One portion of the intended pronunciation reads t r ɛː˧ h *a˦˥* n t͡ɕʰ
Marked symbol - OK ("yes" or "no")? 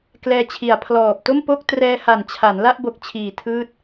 no